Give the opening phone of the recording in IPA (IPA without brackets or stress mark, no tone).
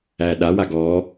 æ